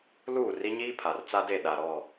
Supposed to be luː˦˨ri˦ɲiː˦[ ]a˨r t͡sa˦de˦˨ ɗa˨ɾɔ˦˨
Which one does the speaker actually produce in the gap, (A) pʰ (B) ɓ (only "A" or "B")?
A